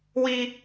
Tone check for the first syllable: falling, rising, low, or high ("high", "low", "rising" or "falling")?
high